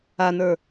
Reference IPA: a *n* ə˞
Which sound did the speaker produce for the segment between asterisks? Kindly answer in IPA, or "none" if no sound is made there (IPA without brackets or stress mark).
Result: n